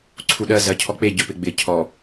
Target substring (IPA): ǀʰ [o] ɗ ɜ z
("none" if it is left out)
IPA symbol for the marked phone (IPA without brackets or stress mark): u